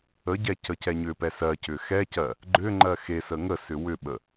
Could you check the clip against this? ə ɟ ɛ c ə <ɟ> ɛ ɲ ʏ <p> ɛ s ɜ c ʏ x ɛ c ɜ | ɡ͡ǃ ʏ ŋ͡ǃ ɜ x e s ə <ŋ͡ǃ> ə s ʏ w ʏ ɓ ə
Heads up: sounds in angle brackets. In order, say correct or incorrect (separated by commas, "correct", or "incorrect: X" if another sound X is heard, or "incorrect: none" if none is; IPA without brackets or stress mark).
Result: incorrect: c, correct, incorrect: ŋ